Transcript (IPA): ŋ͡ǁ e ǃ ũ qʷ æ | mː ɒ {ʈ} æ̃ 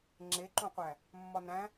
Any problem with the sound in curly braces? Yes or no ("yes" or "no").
yes